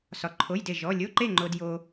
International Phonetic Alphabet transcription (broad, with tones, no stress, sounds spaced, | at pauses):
s ɒ˧ ǃʰ o˧˥˧ j d e˥˨ ʒ ɔ˧˥˧ lʲ o˧˥˧ ǃ e˥˨ ŋ͡ǃ o˧ d j o˧